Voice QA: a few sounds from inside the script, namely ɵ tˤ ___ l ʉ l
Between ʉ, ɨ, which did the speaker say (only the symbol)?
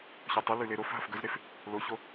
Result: ɨ